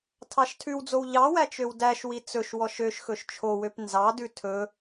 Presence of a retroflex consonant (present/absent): absent